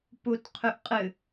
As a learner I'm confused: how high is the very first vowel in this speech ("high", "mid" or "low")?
high